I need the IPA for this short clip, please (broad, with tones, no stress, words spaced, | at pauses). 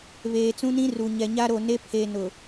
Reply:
βeː˨t͡sũ˦nĩ˦ ru˨ɲɛ˨ ɲa˦ɾo˨ne˦pʰe˨ nʊ˨